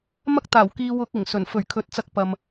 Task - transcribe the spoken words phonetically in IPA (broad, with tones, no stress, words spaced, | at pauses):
mɐ˥k̚t̪aː˨˩wkiː˧wʊ˧k̚ ɪ˨˩ŋsɵ˨˩n fɵ˨˩ɥkʰɵ˨˥t̚t͡sɐ˧k̚ pɐ˨m